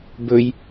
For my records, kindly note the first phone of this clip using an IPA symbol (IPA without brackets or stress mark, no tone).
b